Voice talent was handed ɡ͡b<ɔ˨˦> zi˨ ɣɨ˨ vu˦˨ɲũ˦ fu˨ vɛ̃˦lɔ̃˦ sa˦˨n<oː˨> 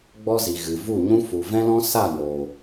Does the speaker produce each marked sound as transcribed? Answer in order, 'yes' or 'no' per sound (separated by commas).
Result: no, yes